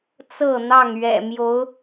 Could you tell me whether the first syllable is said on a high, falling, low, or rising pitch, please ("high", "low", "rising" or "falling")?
falling